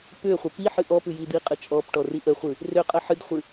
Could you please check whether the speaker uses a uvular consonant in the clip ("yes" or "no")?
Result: yes